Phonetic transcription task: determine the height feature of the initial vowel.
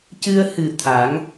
high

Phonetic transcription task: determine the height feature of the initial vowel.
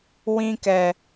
high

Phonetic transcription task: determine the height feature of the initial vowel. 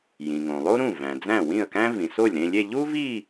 high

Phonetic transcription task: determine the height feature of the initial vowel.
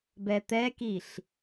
mid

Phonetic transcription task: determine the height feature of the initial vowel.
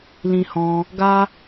high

